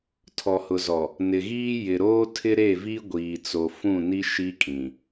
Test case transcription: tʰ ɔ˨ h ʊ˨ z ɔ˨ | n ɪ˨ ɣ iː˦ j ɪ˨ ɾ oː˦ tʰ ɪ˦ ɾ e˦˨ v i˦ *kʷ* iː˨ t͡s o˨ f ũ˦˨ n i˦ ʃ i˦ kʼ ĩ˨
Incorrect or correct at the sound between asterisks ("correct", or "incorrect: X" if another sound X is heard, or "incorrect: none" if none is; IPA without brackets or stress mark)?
incorrect: ɡʷ